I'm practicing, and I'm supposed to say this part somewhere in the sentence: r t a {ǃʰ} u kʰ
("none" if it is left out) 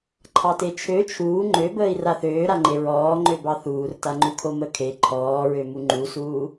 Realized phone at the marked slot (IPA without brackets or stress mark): ŋ͡ǃ